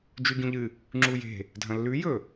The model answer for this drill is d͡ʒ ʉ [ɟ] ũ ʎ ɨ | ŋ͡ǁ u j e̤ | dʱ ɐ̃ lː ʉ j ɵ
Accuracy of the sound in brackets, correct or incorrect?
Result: correct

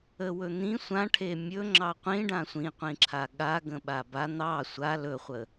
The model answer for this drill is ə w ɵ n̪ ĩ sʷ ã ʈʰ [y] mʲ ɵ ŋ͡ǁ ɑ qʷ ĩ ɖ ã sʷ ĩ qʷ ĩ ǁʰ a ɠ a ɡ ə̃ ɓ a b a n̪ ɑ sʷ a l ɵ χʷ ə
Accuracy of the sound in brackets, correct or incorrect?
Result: incorrect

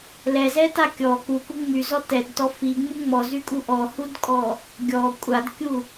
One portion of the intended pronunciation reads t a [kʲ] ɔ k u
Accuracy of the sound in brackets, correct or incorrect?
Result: correct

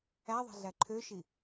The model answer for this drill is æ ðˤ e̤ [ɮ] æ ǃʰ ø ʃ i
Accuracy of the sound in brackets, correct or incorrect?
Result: correct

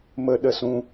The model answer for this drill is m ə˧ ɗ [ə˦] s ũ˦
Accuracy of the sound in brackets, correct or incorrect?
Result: correct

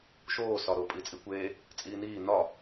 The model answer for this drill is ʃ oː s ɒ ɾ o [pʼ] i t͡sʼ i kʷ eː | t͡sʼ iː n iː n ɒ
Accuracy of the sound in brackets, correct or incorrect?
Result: correct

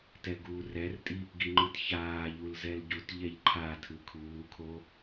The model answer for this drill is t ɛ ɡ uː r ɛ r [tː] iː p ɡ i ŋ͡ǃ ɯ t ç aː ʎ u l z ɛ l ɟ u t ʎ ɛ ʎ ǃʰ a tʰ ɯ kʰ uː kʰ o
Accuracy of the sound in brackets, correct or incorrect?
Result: incorrect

